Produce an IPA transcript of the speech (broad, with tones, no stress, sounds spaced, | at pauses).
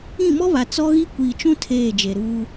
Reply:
ĩ˦˨ m ɔ˦ β a˨ t͡s ɔ˦ ɣ i˦ kʷ iː˨ t͡ʃ ũ˦ tʰ eː˦˨ d͡ʒ e˨ ɾ uː˦